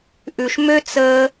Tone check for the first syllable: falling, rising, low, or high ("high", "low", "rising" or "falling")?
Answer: low